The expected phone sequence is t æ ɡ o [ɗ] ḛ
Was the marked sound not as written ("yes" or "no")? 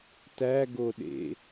no